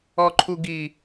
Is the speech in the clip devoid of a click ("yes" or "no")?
no